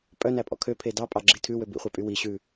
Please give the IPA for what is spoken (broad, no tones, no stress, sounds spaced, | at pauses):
pʼ œ n æ pʼ ɔ̰ kʰ ø pʰ e d ɑ pʼ ɑ ɡ͡ǁ i tʰ ʉ w ø b ḭ χʷ e pʼ y w i ɕ ʉ